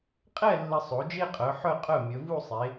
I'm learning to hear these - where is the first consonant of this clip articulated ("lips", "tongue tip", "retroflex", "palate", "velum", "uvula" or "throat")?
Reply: uvula